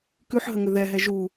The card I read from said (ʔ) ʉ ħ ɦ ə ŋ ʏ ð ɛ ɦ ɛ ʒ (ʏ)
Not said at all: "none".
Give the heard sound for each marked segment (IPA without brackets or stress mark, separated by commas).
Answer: k, u